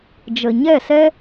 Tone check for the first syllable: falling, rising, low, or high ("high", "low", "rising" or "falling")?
low